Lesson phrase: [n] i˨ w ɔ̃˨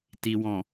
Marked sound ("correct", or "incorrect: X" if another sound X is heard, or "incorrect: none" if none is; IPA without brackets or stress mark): incorrect: t